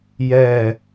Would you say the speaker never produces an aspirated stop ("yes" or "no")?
yes